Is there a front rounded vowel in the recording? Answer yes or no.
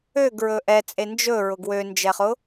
yes